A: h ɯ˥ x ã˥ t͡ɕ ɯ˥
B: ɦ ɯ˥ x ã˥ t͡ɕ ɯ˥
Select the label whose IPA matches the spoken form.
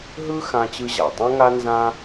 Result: B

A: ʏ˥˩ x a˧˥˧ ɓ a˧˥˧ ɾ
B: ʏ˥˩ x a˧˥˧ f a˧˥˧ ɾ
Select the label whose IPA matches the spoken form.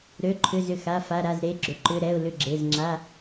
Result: B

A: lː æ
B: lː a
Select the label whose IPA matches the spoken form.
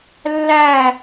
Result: A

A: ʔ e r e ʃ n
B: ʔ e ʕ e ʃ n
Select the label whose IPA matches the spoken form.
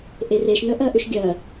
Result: A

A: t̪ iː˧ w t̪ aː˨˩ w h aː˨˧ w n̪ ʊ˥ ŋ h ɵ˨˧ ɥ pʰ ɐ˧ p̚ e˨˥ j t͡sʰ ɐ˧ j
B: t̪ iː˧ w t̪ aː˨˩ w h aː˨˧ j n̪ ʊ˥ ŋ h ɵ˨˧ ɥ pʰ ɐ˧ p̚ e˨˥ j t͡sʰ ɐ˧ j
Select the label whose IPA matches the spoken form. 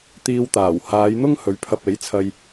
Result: B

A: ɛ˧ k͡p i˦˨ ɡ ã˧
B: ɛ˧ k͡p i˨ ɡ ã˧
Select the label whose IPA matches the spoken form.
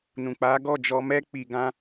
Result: B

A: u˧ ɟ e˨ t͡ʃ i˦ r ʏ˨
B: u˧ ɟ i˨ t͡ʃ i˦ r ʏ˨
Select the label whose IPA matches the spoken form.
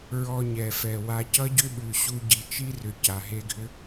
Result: B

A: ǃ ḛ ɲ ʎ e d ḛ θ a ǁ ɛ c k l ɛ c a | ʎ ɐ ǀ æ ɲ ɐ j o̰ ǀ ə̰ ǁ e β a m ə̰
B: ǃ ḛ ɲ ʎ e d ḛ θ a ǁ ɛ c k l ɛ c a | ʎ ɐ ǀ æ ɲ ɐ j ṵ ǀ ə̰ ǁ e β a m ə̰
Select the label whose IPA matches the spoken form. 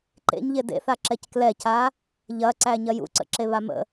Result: B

